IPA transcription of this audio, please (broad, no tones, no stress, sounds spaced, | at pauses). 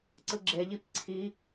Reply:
ǀ ɯ ɡ͡ǁ e ʎ i p ǀʰ i